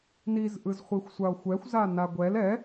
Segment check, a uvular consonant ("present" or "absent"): present